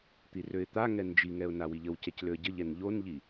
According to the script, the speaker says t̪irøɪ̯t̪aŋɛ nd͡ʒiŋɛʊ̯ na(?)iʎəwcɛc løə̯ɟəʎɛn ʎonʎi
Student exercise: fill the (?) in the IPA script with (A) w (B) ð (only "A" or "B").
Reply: A